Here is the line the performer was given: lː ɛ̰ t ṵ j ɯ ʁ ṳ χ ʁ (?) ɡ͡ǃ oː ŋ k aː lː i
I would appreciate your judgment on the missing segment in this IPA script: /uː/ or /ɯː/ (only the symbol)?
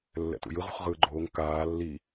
ɯː